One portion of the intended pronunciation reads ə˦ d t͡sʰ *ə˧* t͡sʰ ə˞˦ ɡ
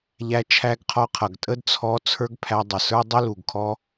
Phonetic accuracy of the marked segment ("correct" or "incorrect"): incorrect